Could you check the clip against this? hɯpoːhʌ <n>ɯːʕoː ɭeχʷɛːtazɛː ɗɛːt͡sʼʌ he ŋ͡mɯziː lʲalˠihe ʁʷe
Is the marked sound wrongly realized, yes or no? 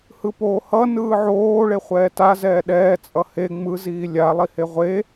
no